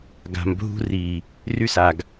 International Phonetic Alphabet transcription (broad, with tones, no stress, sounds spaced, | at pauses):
ɡ a̤˨ m bʱ ṳ˦ r i˨ | r y˦ s a˨ ɡ